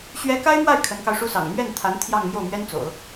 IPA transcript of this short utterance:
ɕɥɛ˧˥ ka˥ɪ̯mwa˥˩ɪ̯ kʰə˧˥nkɑ˧ʊ̯ʂu˥sɑ̰˨˩ŋ mɥɛ˥˩nt̪ʰa˧˥n t̪ʰjɑ˥˧ŋ mjo˥˩ʊ̯mɥɛ˥nt͡so̰˨˩˦ʊ̯

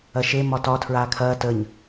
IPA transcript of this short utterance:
ɐʃe mɒtɒ tʰɹaːkʰɐː təɲ

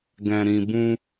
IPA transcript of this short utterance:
ɡɛ̃˨ɾĩ˨ bũ˧

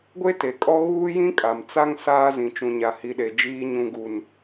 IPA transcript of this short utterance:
ɡʷe˦te˨kʼɔ˦ ɣuː˦jĩ˦kʼa˨m t͡sa˦ŋ saː˦zĩ˨ t͡ʃũ˨ɲa˨hi˨ɗe˨ d͡ʒiː˦ɲũ˦ɡu˦n

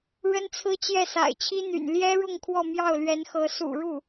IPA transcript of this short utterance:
ɻə˥nt͡sʰɹ̩˥t͡ɕjɛ˥˩ sa̰˨˩ɪ̯t͡ɕʰi˥ n̪y̰˨˩n ljɛ˥ɻʊ˥˧ŋ kʰwɔ˥˧mjɑ˥˩ʊ̯lɥɛ˧˥nxɤ˧˥ sṵ˨˩ɻu˥˩

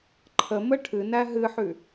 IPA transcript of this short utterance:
ǃʰəmə ʈʰɨnæ ɦɨħʉ

